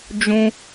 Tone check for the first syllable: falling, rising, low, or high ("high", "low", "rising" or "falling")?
high